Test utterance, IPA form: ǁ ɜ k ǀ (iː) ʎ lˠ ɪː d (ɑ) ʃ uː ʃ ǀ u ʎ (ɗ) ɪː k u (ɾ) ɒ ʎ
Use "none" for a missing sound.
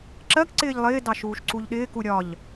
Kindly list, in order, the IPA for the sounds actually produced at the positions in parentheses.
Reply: ɪː, ɑ, ɗ, ɾʲ

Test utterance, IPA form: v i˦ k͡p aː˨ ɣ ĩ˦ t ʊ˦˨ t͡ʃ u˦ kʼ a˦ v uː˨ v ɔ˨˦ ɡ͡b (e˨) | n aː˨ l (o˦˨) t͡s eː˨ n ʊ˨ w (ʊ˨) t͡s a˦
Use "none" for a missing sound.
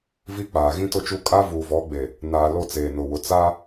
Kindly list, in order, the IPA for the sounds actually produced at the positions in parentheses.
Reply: e˨, o˦˨, ʊ˨

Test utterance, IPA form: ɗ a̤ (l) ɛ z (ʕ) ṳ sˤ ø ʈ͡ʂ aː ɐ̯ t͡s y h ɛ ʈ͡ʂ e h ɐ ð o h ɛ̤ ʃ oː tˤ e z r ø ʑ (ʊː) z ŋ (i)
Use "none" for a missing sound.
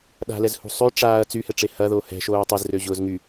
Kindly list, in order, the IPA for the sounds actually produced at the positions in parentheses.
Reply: l, h, ʊː, y

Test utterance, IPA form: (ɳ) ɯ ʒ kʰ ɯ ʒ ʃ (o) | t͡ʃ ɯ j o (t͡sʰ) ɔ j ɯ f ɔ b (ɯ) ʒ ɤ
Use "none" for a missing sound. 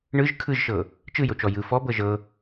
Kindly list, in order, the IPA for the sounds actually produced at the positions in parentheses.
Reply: ɳ, ɤ, t͡ʃ, ɤ

